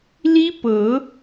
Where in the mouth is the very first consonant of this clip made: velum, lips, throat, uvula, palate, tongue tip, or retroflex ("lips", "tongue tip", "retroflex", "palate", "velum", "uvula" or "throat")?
tongue tip